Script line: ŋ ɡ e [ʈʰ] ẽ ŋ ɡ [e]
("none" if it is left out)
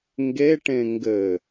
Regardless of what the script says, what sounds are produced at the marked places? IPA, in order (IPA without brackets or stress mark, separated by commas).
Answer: ʈ, ɘ